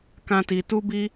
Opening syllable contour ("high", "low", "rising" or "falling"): high